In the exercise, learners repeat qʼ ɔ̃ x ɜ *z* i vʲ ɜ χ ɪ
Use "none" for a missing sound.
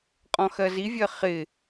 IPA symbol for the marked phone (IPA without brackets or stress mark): z